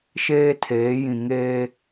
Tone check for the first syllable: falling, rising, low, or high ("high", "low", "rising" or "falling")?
high